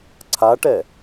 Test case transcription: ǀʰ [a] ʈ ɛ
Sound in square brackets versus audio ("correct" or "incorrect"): correct